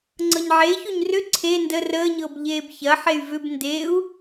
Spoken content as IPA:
ŋ͡ǀɤɲʕeçuɲ rʏ ǀʰe ndə rəːɲɤb ʎeːbçɐħey̯ vʏb ndeu̯

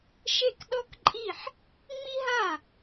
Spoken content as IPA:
ʃe˥˩kɗɔ˥kǃʼi˥˩ħ | ŋ͡mi˥ɦa˥˩

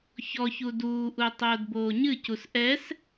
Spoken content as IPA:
çɔçu duːʔu tˤoːdboːɲɨcus ʔɛs

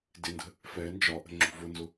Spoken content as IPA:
dɪndə̤ | fɛ nd͡ʒɒʔə̤ ŋ͡ǁṳvʊnzʊ

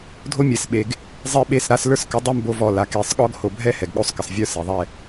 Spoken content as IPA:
dʱo˦mʲɛ˨sɓe˨ɡ | zˤe˦ɓe˦˨sɾa˦s lə˞˦skə˨˦ dˤɛ˦m bo˦vɔ˦˨ la˨ke˨˦sˤɠɔ˦ɡ ho˨bʱɛ˦ hɛ˨ɡɠo˦sˤkə˨sˤ vʲə˞˦ se˨ðˤɛ˦˨

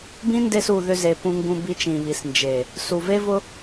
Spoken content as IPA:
bĩ˦nde˧su˨ ðʏ˧ze˨ pũ˧ŋɡũ˧bi˧t͡ʃĩ˨ βi˨snd͡ʒe˨ | su˨ve˦vʊ˦

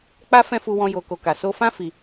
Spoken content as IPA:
k͡pa˦ fɛ̃˦fu˧wɔ̃˧ jo˧ko˧ ka˨so˧fã˦ fi˧

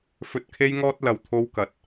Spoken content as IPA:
fɵ˨t̚kʰe˧jŋɔː˧t̚ lɐ˨wt̪ʰo˧wkɐ˨˥t̚

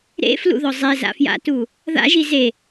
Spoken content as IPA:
ɾḛflṵðɔ zˤeza̰fja̰tu | ða̰ʒi ze

